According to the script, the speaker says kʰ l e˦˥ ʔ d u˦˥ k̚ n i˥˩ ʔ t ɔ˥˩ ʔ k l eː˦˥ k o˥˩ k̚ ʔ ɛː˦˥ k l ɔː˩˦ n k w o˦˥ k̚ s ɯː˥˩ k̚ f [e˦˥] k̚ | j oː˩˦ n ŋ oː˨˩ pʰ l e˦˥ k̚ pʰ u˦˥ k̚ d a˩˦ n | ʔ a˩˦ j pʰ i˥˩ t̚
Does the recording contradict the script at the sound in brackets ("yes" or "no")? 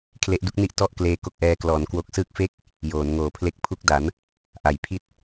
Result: yes